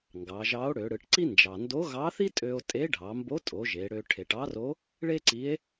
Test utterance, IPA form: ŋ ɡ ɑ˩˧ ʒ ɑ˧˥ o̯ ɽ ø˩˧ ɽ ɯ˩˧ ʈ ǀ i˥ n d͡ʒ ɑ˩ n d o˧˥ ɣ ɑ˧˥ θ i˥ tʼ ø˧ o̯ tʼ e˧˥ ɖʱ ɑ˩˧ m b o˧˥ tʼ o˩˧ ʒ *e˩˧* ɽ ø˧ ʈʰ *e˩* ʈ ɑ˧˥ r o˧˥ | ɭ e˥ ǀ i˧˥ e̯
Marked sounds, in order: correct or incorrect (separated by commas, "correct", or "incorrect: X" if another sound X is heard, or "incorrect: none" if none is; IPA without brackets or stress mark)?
correct, correct